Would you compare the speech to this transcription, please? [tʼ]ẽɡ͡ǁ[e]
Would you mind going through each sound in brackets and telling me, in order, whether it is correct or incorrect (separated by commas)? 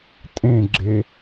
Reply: correct, correct